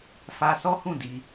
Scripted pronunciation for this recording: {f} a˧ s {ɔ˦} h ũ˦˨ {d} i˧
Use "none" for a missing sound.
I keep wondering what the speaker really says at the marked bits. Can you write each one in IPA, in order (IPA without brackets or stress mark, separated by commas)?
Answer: f, ɔ˦, d